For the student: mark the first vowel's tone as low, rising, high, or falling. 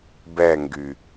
falling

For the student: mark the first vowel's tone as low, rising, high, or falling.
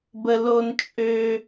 low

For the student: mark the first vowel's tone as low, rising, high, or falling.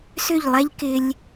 falling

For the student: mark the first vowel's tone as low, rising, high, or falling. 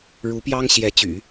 rising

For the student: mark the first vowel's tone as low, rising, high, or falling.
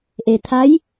low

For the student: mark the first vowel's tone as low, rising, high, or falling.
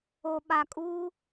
low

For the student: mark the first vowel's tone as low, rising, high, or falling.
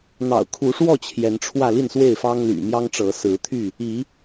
low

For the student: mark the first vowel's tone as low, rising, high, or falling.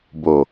low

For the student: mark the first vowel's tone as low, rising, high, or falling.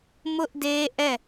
high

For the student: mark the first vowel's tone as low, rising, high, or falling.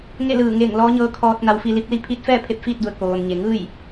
falling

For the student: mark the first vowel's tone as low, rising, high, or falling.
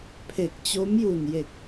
low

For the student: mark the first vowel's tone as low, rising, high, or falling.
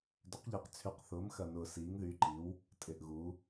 rising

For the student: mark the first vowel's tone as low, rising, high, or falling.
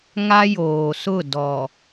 high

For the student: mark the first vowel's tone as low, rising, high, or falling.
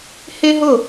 high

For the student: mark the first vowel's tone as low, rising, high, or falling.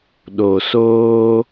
low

